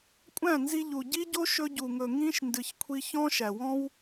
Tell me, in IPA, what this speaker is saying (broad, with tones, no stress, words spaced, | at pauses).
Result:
kʷʼæ̃˦˨nzi˧ʎu˨ ɟi˦ɟo˦ ʃɵ˧ɟu˨ŋɵ˨ ŋĩ˦ʃ ndɨ˨çkʷʰi˧ çɔ̃˦ʃæ˨wɔ̃˦w